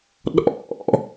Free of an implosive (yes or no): no